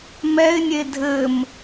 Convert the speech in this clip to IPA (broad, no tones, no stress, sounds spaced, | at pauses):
m ɛ ɪ̯ nʲ e dʱ ɘ m